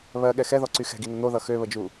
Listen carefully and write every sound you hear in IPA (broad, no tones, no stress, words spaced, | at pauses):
βɜ ɠɛxɛðɔǀy xɛ̤ɡinʌ n̪oðʌ xøβəd͡ʒu